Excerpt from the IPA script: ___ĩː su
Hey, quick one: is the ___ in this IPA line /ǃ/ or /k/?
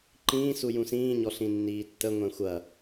ǃ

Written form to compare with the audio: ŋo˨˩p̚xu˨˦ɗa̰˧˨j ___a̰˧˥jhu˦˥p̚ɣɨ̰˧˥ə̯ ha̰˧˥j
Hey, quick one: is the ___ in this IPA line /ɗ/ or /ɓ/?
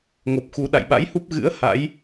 ɓ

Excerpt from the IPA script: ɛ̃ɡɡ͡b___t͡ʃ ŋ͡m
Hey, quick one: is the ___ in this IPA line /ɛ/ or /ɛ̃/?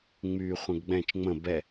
ɛ̃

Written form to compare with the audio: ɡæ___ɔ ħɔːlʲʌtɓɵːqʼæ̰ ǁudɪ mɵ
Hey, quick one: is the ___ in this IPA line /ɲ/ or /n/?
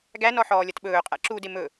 n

